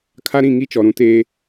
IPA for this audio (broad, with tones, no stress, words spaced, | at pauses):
kʰa˦ɾĩ˦˨ ŋi˦t͡ʃɔ˨ɾũ˨˦ teː˦